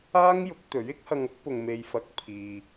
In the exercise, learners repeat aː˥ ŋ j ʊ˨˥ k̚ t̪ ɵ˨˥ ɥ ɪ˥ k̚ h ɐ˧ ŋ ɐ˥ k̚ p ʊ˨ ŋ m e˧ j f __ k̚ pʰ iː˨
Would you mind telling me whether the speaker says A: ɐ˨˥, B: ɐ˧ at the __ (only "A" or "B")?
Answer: B